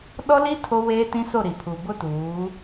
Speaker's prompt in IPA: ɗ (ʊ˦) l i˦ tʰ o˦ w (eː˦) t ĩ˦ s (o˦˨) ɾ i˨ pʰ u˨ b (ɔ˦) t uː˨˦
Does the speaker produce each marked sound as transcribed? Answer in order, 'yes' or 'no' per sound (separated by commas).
no, yes, yes, no